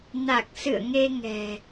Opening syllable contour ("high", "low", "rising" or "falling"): low